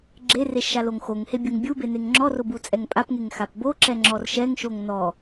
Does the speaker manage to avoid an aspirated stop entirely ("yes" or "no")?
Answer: yes